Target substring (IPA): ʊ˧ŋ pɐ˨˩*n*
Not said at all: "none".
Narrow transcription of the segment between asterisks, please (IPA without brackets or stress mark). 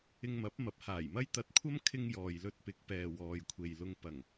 ŋ